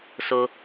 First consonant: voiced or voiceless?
voiceless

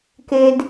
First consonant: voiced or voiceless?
voiceless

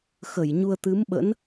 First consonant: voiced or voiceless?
voiceless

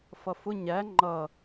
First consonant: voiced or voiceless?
voiceless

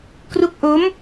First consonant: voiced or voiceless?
voiceless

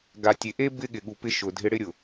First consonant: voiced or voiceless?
voiced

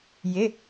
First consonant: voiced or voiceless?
voiced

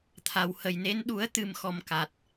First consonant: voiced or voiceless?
voiceless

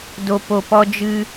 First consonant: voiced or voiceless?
voiced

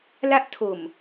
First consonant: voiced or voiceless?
voiced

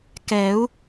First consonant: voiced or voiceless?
voiceless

